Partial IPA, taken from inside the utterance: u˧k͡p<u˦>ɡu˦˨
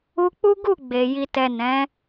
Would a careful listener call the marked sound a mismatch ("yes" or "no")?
no